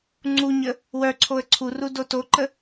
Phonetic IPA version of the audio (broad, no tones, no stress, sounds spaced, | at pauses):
ŋ͡ǀ u ɲ ə | w œ ǀʰ o ə̯ ǀʰ u r u d o t o ǃ ə